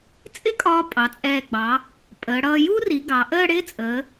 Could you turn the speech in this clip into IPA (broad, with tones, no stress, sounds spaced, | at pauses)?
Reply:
t͡sʼ ɪ˥ kʼ ɒː˧ pʼ ɑ˩˧ t͡sʼ ɛː˧˩ ɡ͡b ɑ˩˧ | pʼ əː˩˧ ɽ ʌː˧ j u˥ r i˩˧ ɡ ɑ˩˧ ʔ əː˥˧ ɽ ɪː˥ t͡sʼ əː˩˧